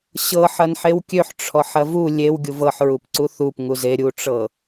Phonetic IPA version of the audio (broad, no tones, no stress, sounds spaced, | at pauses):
ɕ ɤ ħ ɐ n ħ e w kʲ ø ħ ʈ͡ʂʰ ɔ ħ ɐ v u lʲ e w ɡʲ u v ɤ ħ ɹ u p ǀ u θ u p ŋ u z e ɾʲ u ʈ͡ʂ ɤ